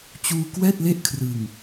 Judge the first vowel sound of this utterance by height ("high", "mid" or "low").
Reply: high